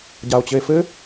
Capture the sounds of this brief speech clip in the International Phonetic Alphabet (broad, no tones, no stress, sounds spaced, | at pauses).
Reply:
ɟ a o̯ t͡ɕ ɘ e̯ f ɘ